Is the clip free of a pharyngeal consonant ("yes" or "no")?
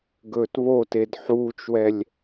no